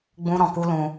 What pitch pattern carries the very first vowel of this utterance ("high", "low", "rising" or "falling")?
high